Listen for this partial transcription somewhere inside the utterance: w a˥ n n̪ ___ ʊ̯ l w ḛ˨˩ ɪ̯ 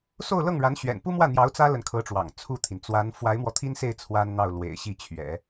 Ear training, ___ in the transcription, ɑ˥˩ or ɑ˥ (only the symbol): ɑ˥˩